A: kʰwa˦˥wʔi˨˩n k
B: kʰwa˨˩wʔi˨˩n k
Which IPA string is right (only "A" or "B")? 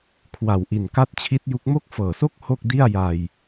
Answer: B